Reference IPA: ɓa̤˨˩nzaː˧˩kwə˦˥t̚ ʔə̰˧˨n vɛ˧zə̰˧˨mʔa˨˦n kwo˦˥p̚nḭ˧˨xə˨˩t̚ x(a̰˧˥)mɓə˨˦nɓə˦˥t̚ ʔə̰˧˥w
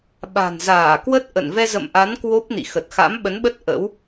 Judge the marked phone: correct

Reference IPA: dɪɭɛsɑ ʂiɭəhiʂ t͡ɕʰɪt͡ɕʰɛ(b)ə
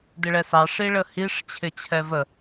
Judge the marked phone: incorrect: v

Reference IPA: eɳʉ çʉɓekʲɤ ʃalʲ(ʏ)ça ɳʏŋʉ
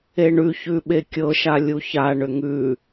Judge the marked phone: incorrect: u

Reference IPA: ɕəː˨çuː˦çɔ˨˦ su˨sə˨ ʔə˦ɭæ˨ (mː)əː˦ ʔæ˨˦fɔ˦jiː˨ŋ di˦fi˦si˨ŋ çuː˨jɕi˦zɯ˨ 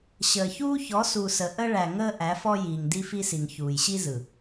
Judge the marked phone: incorrect: ŋ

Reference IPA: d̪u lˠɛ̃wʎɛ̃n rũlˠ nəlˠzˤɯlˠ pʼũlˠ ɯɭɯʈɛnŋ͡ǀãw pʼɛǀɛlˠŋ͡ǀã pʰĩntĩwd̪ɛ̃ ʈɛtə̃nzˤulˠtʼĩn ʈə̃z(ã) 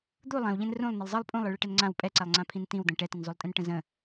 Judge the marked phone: incorrect: ə̃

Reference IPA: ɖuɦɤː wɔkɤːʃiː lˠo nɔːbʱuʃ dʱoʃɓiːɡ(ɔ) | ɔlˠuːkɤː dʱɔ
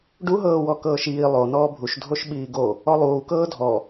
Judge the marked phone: incorrect: o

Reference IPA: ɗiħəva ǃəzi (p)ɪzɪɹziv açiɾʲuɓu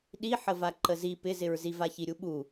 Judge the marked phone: correct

